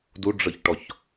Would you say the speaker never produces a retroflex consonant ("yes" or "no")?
no